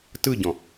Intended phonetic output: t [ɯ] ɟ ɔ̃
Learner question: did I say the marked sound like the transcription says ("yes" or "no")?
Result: yes